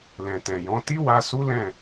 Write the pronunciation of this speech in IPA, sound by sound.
l ɛ̃˨ t ɛ̃˨ j ɔ̃˨˦ t i˦ w a˧ s u˦ l ɛ̃˦˨

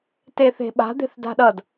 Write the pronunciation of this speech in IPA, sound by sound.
t e θ e̤ ɓ a̤ d̪ e̤ θ d a̤ ɗ ʌ d

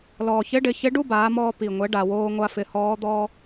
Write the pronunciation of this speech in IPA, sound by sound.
l ɔː˩ ç ɪ˧˥ ɖ ɪ˩˧ ç ɪ˧˥ ɖ u˥ b aː˩˧ m ɔː˧ p i˩ ŋʷ ɛ˩˧ ɖ a˩ w oː˧ ŋʷ a˧ f ɪ˩˧ h ɔː˧˥ d̪ ɔː˥

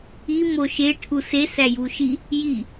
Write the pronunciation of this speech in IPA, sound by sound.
i m o ʃ e ʈʰ u s e s æ j u ʃ i | j i

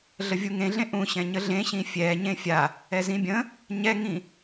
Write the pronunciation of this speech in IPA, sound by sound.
ɮ ə vʲ u ŋ ẽ ɮ ẽ ʔ ũ ɕ ɛ̃ ɲ ə ɮ ẽ ɕ ĩ fʲ ɛ ɲ ẽ fʲ a | ɛ z ĩ bʲ ə̃ | ɲ ɛ ŋ ĩ

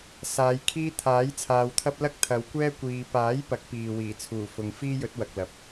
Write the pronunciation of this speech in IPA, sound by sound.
s aː˨˧ j kʰ iː˥ t̪ʰ aː˨˥ j t͡sʰ aː˨ w t̪ʰ ɐ˧ p̚ l ɐ˥ k̚ t̪ʰ ɐ˨˧ w kʷ ɛː˥ kʷ iː˧ p aː˨˥ j p ɐ˨˥ k̚ p iː˨ w iː˨˩ t͡sʰ uː˨˩ f ʊ˨ ŋ f iː˥ j ɵ˨˥ t̚ w ɐ˨ k̚ l ɐ˨ p̚

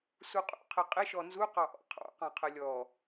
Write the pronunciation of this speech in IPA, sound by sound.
s u qʼ ṵ qʰ ɪ qʼ ɪ ʃ ɔ n z u q ɑ ʔ ɔ̰ qʰ ɑ̰ q ɑ̃ qʰ ə lʲ ɔ

